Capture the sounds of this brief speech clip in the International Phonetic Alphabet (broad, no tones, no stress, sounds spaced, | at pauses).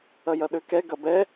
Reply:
ɐ j ɐ ɗ ø k ɛ ɡ ɐ b ɛ